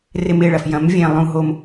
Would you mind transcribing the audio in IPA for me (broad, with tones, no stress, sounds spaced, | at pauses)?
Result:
r ɪ˧˩ m ɪː˧˩ ɭ ɐ˩ f j ɐ̃˩˥ m vʲ ẽ˧˩ lˠ ũ˧˩ ɦ o˧˩ m